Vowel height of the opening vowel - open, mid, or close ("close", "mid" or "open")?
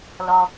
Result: mid